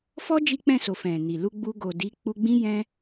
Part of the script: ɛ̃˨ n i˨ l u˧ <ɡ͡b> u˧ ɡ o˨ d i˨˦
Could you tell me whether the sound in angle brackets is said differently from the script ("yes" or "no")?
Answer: no